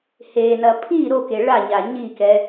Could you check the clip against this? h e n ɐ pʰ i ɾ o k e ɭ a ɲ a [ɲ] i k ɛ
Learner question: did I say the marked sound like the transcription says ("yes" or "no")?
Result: yes